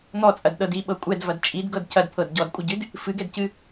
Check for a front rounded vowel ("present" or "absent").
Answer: absent